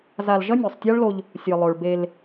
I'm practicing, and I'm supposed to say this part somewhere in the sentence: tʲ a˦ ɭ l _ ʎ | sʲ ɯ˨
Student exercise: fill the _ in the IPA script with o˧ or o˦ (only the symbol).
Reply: o˧